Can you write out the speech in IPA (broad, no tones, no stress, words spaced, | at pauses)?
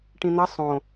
ʈĩn̪ɐ sˤõ